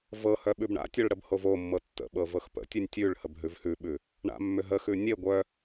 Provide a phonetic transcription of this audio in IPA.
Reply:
v ɤ h œ ɓ ʉ b ɳ a̰ tʲ œ ɭ ɽ ə b h o v o mː ɤ tː ə̰ ɓ ɤ v ɤ x p ə̰ tʲ ʉ nʲ tʲ ʉ ɭ h ə b ɦ ʉ v h ʉ ɓ ʉ | ɳ a̰ mː ʏ ɦ ə x ʉ nʲ e ɡʷ œ

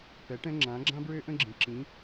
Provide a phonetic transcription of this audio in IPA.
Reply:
p ɛ˩˥ ʈ ɛ̃˥ ŋ͡ǁ ã˩˥ ɡ͡ǁ ã˥ b ɹ ø˥ ʔ ə̃˥ ɡ͡ǁ ĩ˩ ǁ ĩ˩˥

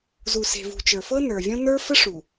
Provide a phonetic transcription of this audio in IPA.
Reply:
z u˨ s e̤˨ v ṳ˨ t͡ʃ ə˞˨ f ɤ˦ n ə˞˨ vʲ õ˦ n ə˞˦ f ə˦ ʂ u˨

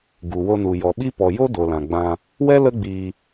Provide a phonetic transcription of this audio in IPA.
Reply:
ɡ u˨ w o˧ n u˨ j ɔ˨ ɓ i˦ p ɔ˨ j o˦ d o˨ l ã˨ ɡ͡b ã˧ | w ɛ˦ l ə˦ ɡ͡b iː˧

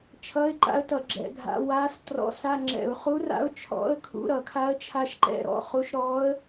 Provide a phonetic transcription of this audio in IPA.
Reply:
t͡ʃʰ ʌ˧˥˧ ɪ̯ ǃ a̰˧˥ ə̯ t ʌ˧˩˧ ɡ͡ǁ ɛ̰˧˩˧ ɡʱ a̰˧˥˧ w a˧˥ s t r ɔ̰˧˥ s a˧˥˧ ŋ͡ǁ ɛ̰˧˩˧ ʊ̯ χ u˧˥ r a̰˧˥ ʊ̯ t͡ʃʰ ɔ̰˧˥˧ ə̯ kʰ ṵ˧˥˧ ɾ ʌ˧˩˧ kʰ a˧˥ ə̯ t͡ʃʰ a˧˥ ʃ ǃ ɛ̰˧˥˧ ɾ ɔ̰˧˥˧ χ u˧˥ ʃ ɾ ɔ˧˥ ə̯

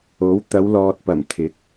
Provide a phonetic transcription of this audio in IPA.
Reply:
o˨˥ w t̪ ɐ˨˧ w l ɔː˨ t̚ p ɐ˨˩ m t̪ʰ ɪ˨˥ k̚

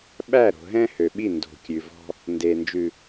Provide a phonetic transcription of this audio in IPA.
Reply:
ɓ æ˦˨ ɾ o̤˨ ɦ ɛ̃˦ h ø˨ ɓ i˦˨ n d o̤˨ kʲ ʉ˨ v ɔ̤˦ | n d e˨ n d͡ʒ ʉ˨

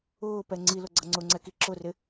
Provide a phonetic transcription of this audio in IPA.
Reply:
ʊː p ɛ ŋ͡ǀ i l ʊ ɡ͡ǀ ʌ ŋ͡ǀ ʊ ŋ͡ǀ ɛ k i ǁ ʊ r ɪ

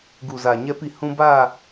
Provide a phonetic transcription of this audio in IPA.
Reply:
ɡ u˨ z a˨ ɲ ɛ˧ p i˨ h ũ˧ b a˦˨

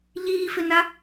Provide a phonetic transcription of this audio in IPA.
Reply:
ʎ iː f ɪ n a

